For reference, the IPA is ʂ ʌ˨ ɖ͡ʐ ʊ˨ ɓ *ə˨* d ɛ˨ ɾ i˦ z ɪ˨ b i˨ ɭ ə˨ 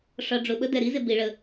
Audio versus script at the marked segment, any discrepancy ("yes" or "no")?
yes